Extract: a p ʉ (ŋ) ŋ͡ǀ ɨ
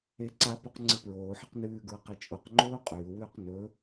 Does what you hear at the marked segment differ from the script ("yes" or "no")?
yes